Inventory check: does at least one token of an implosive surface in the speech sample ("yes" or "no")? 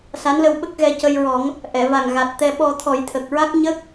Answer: yes